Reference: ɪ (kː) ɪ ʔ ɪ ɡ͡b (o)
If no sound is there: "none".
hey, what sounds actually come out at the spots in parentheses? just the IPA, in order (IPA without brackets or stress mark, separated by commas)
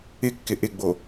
kː, o